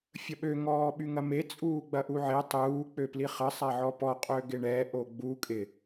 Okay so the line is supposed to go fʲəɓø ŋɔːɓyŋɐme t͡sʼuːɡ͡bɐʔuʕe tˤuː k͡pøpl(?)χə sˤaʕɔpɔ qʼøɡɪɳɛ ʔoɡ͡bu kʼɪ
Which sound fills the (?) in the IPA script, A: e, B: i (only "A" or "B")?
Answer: B